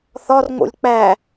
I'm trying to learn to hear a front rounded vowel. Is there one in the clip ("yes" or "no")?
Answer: no